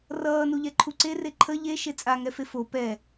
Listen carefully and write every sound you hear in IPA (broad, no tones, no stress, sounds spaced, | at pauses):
r ʌː n u ʎ ɛ ǃʰ u ǀ e r e ǃʰ ə ʎ e ʃ e t͡sʼ a ŋ ɛ f e f o p ɛ